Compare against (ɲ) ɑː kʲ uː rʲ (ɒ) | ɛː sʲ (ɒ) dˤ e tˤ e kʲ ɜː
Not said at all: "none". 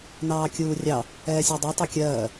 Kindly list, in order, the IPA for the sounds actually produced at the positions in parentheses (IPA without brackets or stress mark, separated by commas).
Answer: n, ɑ, ɑ